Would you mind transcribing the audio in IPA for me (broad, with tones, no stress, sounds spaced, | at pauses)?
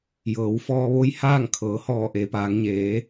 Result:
j ɤː˩˧ w f ɔː˧ ʋ o˧˥ j h aː˥˨ ŋ kʰ ɤː˩˧ h ɔː˧˩ ʔ e˩˧ p aː˩˧ ŋ ɲ eː˩˧